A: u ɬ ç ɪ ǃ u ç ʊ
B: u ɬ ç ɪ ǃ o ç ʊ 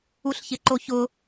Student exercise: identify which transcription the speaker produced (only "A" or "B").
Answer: B